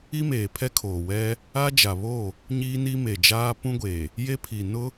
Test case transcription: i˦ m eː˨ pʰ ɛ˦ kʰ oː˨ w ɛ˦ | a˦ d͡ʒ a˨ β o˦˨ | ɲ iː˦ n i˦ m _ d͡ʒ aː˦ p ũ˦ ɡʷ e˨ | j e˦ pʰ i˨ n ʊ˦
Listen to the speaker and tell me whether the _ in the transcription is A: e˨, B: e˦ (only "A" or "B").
A